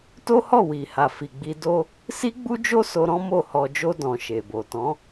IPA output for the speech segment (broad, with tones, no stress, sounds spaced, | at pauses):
t o˦ h ɔ˦˨ w i˨ h a˨ f i˨ ɡ͡b i˧ d o˦ | s i˦ ɡ͡b u˦ d͡ʒ o˦ s o˧ ɾ ɔ̃˦ m o˦˨ h ɔ˧ d͡ʒ o˦ d ɔ̃˧ ʃ e˨ b o˨ t ɔ̃˨˦